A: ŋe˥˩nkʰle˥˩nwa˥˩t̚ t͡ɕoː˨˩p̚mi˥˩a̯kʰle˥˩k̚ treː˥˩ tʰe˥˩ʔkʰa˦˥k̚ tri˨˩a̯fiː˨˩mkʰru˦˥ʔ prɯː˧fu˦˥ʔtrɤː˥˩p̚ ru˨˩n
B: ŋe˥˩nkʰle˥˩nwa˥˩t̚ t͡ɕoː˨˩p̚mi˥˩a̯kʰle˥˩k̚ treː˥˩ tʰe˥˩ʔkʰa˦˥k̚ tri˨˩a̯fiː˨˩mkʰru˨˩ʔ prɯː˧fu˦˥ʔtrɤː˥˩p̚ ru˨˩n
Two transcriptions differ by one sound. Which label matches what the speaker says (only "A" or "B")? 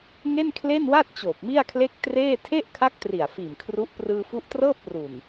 A